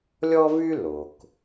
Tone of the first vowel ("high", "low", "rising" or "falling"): high